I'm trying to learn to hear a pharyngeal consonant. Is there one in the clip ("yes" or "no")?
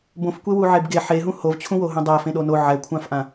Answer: yes